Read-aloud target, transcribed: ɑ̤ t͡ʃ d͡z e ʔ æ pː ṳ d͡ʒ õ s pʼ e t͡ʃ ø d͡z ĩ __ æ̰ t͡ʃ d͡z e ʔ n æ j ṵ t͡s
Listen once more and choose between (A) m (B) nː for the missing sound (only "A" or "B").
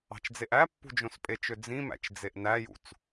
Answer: A